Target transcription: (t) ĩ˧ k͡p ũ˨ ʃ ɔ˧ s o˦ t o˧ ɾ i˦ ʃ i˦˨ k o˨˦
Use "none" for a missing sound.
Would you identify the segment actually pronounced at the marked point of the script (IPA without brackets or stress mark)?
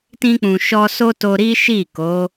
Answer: t